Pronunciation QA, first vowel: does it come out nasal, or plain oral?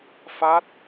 oral